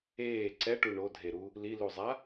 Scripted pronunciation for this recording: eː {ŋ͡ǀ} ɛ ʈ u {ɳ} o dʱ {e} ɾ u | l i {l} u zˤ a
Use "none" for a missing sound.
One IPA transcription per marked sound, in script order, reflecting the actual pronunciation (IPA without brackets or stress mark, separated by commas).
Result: ǀ, ɳ, e, l